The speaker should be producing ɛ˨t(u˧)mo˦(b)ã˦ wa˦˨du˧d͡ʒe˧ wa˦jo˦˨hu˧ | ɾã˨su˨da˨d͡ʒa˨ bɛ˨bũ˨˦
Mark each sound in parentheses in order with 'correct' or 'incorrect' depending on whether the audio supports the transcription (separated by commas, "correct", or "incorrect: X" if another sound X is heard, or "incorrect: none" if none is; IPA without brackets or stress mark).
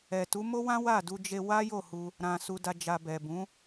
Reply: incorrect: u˨˦, incorrect: w